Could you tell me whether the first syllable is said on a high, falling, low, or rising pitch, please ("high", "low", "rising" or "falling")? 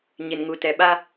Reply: low